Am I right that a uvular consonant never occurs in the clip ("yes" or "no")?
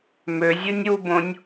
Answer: yes